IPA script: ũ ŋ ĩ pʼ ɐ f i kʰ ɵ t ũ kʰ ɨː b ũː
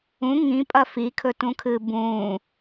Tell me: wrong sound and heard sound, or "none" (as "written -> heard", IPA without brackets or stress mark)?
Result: none